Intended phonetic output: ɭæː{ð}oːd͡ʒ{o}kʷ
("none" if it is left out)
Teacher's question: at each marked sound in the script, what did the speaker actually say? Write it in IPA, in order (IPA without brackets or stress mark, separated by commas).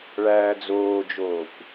d͡z, oː